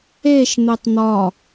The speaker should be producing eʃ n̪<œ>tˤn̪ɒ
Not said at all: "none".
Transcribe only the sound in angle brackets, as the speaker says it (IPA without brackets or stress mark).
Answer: ɛ